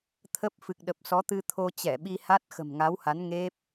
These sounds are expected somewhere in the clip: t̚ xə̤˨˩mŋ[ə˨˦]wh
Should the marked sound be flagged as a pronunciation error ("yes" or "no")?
yes